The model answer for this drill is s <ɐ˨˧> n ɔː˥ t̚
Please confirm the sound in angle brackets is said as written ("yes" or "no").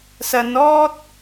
yes